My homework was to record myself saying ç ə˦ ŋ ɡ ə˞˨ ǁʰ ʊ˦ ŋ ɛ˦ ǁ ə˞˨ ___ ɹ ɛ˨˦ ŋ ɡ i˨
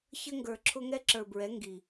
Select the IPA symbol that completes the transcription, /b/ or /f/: b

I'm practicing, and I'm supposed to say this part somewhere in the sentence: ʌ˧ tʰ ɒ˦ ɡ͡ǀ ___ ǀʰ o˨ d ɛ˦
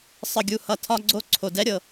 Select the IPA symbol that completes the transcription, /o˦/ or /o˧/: o˦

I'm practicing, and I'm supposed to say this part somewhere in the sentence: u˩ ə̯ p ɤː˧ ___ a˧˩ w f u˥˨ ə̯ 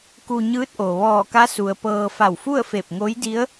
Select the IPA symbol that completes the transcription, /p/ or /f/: f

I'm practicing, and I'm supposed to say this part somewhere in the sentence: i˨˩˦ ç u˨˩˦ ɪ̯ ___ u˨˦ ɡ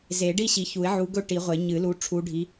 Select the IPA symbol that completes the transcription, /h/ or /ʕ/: ʕ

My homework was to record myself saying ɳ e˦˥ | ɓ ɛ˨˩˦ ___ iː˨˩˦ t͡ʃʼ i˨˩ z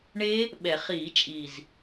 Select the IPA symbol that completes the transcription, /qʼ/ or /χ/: χ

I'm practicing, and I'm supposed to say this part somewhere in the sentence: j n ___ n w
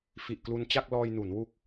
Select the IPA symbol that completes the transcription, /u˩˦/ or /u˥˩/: u˩˦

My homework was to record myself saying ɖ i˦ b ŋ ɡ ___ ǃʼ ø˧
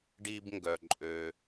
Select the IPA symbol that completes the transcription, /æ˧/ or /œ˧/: œ˧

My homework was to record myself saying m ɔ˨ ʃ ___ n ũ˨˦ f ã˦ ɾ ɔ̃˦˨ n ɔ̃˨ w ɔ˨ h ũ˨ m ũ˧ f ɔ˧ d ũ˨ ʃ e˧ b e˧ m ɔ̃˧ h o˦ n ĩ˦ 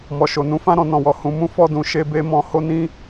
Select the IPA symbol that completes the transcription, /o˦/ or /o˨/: o˨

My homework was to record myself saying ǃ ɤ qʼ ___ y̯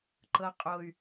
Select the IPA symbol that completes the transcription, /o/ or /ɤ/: o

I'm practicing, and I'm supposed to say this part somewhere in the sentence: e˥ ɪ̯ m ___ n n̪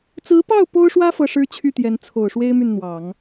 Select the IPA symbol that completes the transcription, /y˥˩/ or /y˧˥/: y˥˩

